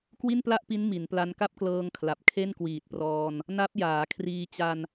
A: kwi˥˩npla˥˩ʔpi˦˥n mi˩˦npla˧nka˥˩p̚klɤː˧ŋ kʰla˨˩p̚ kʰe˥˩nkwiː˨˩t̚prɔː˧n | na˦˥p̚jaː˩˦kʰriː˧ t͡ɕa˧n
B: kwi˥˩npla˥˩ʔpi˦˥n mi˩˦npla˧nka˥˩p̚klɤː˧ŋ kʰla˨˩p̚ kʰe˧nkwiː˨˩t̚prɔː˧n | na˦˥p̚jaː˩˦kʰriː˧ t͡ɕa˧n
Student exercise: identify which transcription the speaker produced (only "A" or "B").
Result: A